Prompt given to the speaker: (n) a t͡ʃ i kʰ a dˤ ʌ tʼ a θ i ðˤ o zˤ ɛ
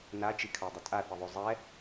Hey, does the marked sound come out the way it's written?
yes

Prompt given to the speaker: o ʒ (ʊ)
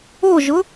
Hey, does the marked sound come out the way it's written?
yes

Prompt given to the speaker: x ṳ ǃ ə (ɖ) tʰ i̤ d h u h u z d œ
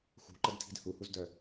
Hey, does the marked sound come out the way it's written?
no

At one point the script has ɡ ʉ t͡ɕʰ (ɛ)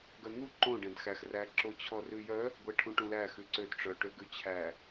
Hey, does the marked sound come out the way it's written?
no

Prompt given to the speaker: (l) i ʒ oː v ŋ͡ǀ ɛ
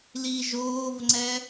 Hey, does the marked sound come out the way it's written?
yes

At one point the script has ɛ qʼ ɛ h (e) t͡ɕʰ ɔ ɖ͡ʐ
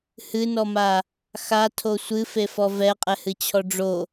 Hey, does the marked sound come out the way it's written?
no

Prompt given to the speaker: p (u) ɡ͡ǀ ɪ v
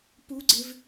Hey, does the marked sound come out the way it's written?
yes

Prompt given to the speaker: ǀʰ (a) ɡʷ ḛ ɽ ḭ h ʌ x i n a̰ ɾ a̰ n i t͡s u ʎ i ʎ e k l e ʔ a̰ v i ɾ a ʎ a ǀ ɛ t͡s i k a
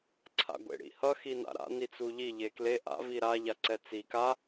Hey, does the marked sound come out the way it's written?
no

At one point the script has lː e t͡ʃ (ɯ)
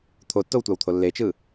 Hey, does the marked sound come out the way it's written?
yes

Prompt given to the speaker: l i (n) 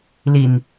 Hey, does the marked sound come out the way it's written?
yes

